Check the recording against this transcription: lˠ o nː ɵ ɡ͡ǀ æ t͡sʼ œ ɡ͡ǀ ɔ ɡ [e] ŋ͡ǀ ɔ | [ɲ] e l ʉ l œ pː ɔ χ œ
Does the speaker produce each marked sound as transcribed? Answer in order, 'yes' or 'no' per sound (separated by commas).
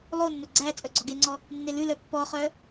yes, no